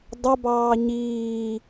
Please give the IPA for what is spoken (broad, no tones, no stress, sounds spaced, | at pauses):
dˤ ʊ b ɑː ɲ iː